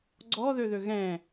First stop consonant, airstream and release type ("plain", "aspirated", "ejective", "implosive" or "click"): click